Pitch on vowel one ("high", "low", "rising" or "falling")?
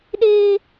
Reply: high